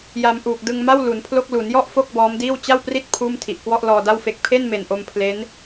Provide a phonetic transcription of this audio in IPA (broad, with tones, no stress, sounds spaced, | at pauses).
j a˧ m ʔ uː˨˩ k̚ d ɯ˧ ŋ m a˥˩ w l u˩˦ n pʰ l o˥˩ k̚ l u˩˦ n j ɔ˥˩ ʔ f o˥˩ k̚ b ɔː˦˥ m d iː˥˩ w t͡ɕ a˥˩ w p r i˥˩ t̚ pʰ uː˥˩ m tʰ i˨˩ ʔ k w ɔ˥˩ ʔ l ɔː˧ d a˥˩ w f e˦˥ k̚ pʰ e˥˩ n m e˨˩ n ʔ o˧ m pʰ l e˦˥ n